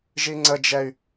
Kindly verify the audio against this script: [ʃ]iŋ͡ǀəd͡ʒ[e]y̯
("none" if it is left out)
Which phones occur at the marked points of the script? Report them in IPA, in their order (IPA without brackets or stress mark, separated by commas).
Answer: ʒ, ɛ